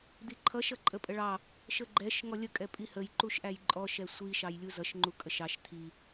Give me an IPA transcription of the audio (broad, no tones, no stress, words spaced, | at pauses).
d̪iǃʰʌʃ ʌǃʼəpʼəɭɑ | ʃəɡ͡ǃɛʃ ŋɔlʲə kʼɛpʼihəj ǃuʃʔæjǃʼɔ ʃɛsʷi ʃɑjlʲuzʌʃ ŋ͡ǃukʼəʃɑʃ t̪ʰi